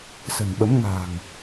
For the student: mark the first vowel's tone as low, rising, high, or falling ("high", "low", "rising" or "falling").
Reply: low